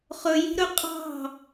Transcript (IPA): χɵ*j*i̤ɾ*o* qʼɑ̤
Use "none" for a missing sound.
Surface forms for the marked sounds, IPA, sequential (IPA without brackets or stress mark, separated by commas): j, ɵ